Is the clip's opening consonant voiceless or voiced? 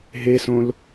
voiced